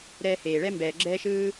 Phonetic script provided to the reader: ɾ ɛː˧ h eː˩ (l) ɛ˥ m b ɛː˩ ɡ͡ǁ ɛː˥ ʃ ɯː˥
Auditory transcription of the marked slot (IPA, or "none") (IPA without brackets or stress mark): ɭ